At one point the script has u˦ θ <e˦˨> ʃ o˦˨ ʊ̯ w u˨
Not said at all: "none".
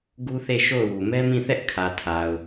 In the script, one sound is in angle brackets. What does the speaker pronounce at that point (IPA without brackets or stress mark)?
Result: e˦˨